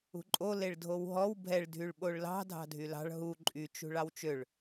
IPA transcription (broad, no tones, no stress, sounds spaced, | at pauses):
ṳ ǃʼ o l e ɭ dʱ o w ɦ ɔ w bʱ ɛ ɭ dʱ y ɭ ɓ o ɭ l ɑ̤ dʱ ɑ̤ dʱ y l ɑ̤ ɭ ɦ u ǃʼ y t͡ʃ ṳ ɭ ɑ w t͡ʃ ø ɭ